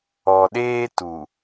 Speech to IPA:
ɔ˨ɗeː˦tu˨

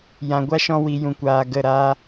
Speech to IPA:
jã˨ɡʷa˦ʃɔ̃˧wi˨ jũ˨kʷaː˨ ɡə˦˨ɾaː˦

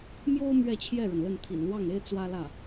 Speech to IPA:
mjo˥ʊ̯ mɥɛ˥˧t͡ɕʰjɛ˥˩ɻə˩nlə˥˩n t̪ʰḭ˨˩nlwɑ˥˩ŋe˥ɪ̯ t͡swä˥lä˥˩

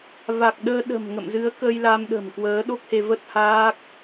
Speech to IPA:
va˨˩k̚ɗəː˧ ɗə̤˨˩m ŋə̰˧˨mzɨ˨˦ə̯ kəː˧jla˧mɗə̤˨˩m kwəː˨˦ɗo˦˥k̚he˧ və˦˥t̚haː˦˥k̚

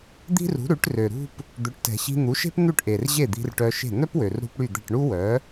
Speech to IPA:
d̪i̤˥rṳ˩˥ ɾʉ˩˥ʈrø˩ɾṳ˥p | d̪ø˩˥ʈtɛ̤˩ɕi̤˧ n̪u˩˥ʃe̤˥pn̪ʉ˥˩ʈʔe˩r ʑe˥˩d̪i̤˧rʈœ˧ʃe̤˥˩ n̪œ˥pwø˩rɾṳ˧p ɽy˥˩d̪ɛ̤˥˩ʈ ɳu˥wœ˩˥

